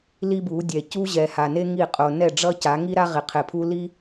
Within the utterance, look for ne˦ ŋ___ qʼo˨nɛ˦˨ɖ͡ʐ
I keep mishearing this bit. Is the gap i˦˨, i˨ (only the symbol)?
i˦˨